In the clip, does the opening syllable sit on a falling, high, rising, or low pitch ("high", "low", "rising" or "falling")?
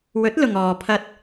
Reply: rising